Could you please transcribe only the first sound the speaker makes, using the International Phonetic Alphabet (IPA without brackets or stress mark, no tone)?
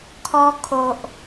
kʰ